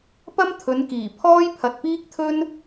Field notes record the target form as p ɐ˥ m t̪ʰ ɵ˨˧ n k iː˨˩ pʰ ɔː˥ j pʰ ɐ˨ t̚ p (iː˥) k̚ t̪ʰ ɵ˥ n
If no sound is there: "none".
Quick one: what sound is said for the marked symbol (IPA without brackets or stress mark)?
iː˥